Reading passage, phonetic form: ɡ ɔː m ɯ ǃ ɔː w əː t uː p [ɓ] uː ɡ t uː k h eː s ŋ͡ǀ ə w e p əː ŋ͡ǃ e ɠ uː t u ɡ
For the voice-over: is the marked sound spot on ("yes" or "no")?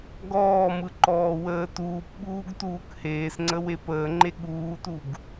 yes